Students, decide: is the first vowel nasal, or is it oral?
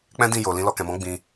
nasal